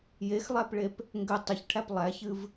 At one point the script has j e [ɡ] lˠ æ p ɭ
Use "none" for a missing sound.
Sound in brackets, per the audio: x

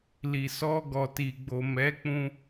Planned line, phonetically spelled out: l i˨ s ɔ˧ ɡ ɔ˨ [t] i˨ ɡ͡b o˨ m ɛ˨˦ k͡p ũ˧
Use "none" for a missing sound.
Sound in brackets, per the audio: t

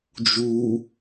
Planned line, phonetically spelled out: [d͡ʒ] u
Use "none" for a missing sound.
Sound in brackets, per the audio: d͡ʒ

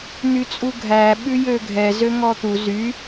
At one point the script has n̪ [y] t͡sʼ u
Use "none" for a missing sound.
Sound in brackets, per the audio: y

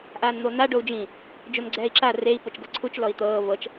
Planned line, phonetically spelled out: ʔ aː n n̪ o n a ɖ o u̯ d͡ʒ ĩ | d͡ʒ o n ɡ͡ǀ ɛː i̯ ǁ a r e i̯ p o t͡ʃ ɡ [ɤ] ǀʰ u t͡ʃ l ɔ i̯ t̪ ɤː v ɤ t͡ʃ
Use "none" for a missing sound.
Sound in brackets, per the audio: ɤ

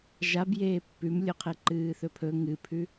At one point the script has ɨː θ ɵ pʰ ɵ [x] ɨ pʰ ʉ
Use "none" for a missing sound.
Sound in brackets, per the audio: ŋ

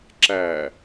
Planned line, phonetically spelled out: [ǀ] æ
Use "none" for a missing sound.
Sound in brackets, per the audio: ǁ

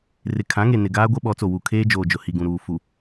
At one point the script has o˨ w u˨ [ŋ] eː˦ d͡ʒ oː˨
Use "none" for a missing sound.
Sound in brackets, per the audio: kʰ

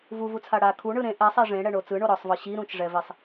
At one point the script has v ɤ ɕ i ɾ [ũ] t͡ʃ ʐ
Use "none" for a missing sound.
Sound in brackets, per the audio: ũ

